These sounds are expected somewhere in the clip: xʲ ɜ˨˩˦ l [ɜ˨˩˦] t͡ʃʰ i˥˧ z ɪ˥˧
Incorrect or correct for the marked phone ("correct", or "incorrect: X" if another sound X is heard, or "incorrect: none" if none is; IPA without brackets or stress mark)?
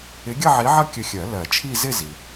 correct